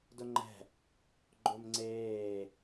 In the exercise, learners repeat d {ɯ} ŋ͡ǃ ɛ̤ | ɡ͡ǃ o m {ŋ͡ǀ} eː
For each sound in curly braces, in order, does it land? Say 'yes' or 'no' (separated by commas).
no, yes